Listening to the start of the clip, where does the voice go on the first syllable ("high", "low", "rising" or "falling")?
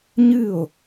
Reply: falling